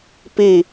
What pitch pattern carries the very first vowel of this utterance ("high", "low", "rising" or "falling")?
falling